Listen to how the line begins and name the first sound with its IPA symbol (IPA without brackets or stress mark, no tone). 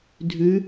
dʱ